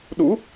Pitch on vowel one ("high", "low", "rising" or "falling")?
rising